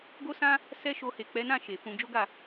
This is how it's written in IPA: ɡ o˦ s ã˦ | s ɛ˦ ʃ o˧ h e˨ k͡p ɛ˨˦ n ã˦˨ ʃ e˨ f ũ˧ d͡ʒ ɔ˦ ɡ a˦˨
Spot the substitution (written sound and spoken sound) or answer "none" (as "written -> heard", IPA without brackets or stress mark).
ɔ˦ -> o˦